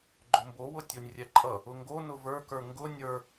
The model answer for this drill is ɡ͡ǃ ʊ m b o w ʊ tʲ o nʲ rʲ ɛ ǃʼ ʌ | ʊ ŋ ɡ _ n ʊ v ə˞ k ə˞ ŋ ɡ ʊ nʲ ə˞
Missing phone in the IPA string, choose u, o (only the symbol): o